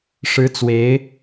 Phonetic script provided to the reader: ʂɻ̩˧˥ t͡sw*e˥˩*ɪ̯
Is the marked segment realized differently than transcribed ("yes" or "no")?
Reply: yes